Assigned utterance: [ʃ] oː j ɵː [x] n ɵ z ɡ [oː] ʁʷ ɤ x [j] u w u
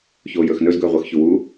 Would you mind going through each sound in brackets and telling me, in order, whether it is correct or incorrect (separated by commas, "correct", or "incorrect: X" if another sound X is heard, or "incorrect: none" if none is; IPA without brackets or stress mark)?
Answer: incorrect: ç, correct, incorrect: ɵː, incorrect: ç